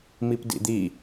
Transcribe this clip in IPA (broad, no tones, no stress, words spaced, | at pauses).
mipdḭd̪i